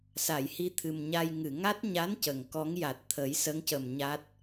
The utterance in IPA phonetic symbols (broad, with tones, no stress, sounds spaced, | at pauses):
s a˨˩˨ j h i˧ t̪ʰ ɨ˨˩ m ɲ a˧ j ŋ ɨ˨˩˨ ŋ a˦˥ t̚ ɲ a˧˥ n c ə˨˩˨ ŋ k ɔ˧˥ ŋ j a˨˩ t̚ t̪ʰ ə˨˩˦ j s ə˧˥ ŋ c ə˨˩ m ɲ a˦˥ t̚